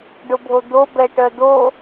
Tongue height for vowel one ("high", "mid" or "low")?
high